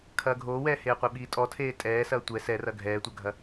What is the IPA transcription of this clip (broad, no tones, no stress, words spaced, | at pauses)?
kʰɐːɡʱoːwɛː heːqʷeɓiːtʼɔ tʰeːtʼɛːsɐː tʷɛ sɛrɐ ɡʱɛːtʷɐɡʱɐ